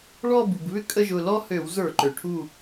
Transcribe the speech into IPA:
ɭ ɔ˥˧ b u˩ ɡ β ʏ˥ kʼ ə˥˧ ʒ ʊ˧˩ l ɔ˥ h ø˧˩˧ w z ə˞˧˩˧ ǃ ø˩ ʈʰ u˧˩

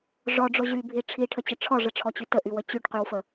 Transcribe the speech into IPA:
ʐ ɔ ɖ͡ʐ o ʑ y bʱ i ʈ͡ʂʰ i ʈʰ ə t͡ɕ ə ʈ͡ʂʰ ɔ ʐ ə ʈ͡ʂʰ ɔ t͡ɕ y t ə ʔ y w ə t͡ɕ y ʈ q y w f ə

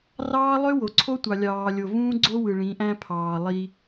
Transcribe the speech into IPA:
r ɑː˦ lˠ ø˦ w o˨ ǀʰ o˦ tʷ ɑ˨ lʲ ɑː˨ lʲ o˨ v ũː˦ ɡ͡ǀ o˦ w ɯ˨ ɭ ĩ˨˦ ʔ æ̃˦ pʰ ɑː˨ lˠ i˦

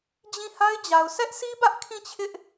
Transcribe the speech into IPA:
d͡ʑ ĩ˦˨ h a˦ ɪ̯ d͡ʑ a˨ ʊ̯ s ɛ˦ ʔ sʰ i˦ b ä˦ ʔ kʰ ĩ˦˨ t͡ɕʰ ɪ˦ ʔ

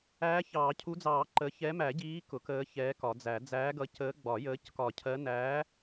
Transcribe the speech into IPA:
æː˨˦ ç ɑː˨˩˦ cʰ u˨˦ d͡z ɑː˨˩˦ ǃ ə˨˦ ç ɛ˨˦ m æ˨˩˦ ɟ iː˨˦ k ʊ˨˩˦ k əː˨˦ ç ɛː˨˦ k ɒ˨˩˦ d͡z æ˨˩˦ d͡z æː˨˦ ɡ ʌ˨˦ c əː˨˦ ɡ͡b ɒ˨˩˦ j əː˨˦ c k ɒ˨˩˦ cʰ ɜ˨˦ n æ˨˦

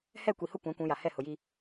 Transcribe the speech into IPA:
h ɛ˦˨ kʷ i˨ h ʊ˦ kʷ ã˨˦ kʷ ũ˨˦ j a˨ h ɛ˦˨ h ʊ˨ j i˦

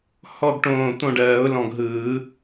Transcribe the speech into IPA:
h ɔ˥˨ ɡ ʈ õː˧˩ t̪ õ˥˨ ɖ ɜː˨˩˦ ʊ̯ l ɔ̃˧˩ ɡ ɦ ɯː˨˩˦

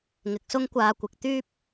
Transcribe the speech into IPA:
ŋ ɪ˨˥ k̚ s ʊ˥ ŋ kʷ aː˧ kʷ ɪ˨˥ k̚ t̪ yː˥ p̚

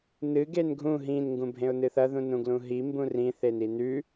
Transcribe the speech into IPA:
n ɨ ɡ e n ɡʱ ũ ɦ ĩ n ŋ ɡ ũ bʱ ẽ ʊ̯ n ɨ θ ɐ ð ũ n ũ ɡ l ũ ɦ i m b ũ r ĩ θ e n i n ʉ

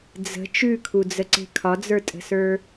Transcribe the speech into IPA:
d͡z ə̤ t͡ʃ ʉ kʰ u d͡z ə ǀ e̤ kʰ ɒ d͡z ə˞ tʼ ə̤ s ə˞

